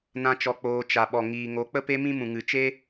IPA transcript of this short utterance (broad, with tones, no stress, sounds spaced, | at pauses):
n ã˦ t͡ʃ ɔ˧ k͡p oː˧ t͡ʃ a˨ ɓ ɔ˨ ŋ iː˨ ŋ o˨˦ k͡p ə˦ p e˦ m ĩ˦ m ũ˨ ŋ ɨ˨ t͡ʃ e˦